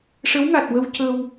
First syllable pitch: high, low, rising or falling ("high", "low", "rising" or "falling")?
rising